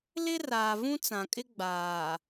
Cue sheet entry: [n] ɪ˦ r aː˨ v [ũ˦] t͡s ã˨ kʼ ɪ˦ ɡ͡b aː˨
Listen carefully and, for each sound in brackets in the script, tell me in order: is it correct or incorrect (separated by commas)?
incorrect, correct